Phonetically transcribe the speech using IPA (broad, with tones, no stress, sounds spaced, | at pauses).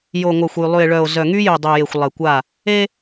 j o˨ ŋʷ a˨ xʷ y˨ lˠ y˨ e̯ ɭ œ˨ o̯ z œ˨ ŋ y˦ j y˨ dˤ y˨ j e˨ xʷ lˠ e˨ kʷ a˦˨ | e˦